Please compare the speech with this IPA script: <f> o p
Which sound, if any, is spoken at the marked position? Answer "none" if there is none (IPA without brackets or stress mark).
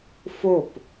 f